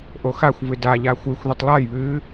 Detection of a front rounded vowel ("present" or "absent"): absent